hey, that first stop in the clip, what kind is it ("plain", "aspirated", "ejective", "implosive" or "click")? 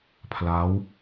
aspirated